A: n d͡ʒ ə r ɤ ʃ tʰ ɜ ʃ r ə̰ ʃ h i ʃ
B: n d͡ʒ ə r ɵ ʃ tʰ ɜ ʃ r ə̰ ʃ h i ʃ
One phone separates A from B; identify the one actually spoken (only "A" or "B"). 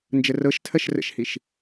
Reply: A